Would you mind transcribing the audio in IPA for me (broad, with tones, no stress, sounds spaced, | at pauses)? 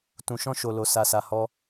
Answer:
t ũ˧ ʃ ɔ̃˦ ʃ o˧ l o˧ s a˧ s a˧ h ɔ˦